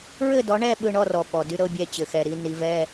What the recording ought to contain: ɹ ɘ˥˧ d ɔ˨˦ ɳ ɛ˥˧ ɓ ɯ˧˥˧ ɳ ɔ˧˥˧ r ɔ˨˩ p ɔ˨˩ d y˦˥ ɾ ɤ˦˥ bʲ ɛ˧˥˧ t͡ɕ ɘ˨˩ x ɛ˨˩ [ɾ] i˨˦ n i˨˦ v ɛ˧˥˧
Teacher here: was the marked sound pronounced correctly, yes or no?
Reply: yes